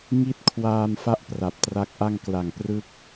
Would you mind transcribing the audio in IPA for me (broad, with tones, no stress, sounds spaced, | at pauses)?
ŋ i˦˥ t̚ kʰ w aː˧ m f a˥˩ ʔ p r a˨˩ p̚ t r a˦˥ k̚ ʔ a˥˩ ŋ k l a˨˩ ŋ p r ɯ˦˥ k̚